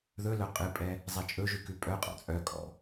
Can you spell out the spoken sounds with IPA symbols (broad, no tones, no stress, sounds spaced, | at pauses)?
ð ɵ l œ qʼ ɨ pʼ ɛ | zˤ ɛ t͡ʃʼ ɵ ʒ ʉ k ʉ pʼ œ qʼ ɔ̰ t͡sʼ œ kʼ ɔ̰